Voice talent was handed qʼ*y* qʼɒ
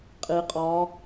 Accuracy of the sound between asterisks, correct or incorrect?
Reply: incorrect